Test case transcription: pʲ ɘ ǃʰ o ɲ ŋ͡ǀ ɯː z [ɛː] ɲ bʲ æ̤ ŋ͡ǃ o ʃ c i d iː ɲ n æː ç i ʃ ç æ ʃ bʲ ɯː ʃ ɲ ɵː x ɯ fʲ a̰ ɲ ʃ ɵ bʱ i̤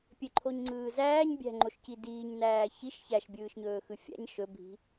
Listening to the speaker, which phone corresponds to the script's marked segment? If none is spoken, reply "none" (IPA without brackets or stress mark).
æː